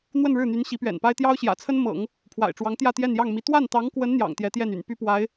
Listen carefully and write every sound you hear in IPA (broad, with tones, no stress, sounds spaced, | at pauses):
n̪ w ə˥˧ n ɻ ɻ̩˥˩ n̪ y˧˥ n ɕ i˧˥ p ɥ ɛ̰˨˩ n p a˥ ɪ̯ t̪ j ɑ˥ ʊ̯ ɕ j ä̰˨˩ t͡sʰ ə˥ n m ɤ̰˨˩˦ ŋ | pʰ w a̰˨˩ ɪ̯ ʈ͡ʂ w ɑ˧˥ ŋ t̪ j ä˥˧ t̪ j ɛ˥˧ n j ɑ˥˩ ŋ m i˧˥ t̪ w a˥˩ n t̪ ɑ˧˥ ŋ k w ə˧˥ n n̪ j ɑ̰˨˩ ŋ t̪ j ɛ˧˥ t̪ j ɛ˥˩ n y̰˨˩ n p y˥ p w a˧˥ ɪ̯